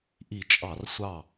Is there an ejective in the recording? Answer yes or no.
yes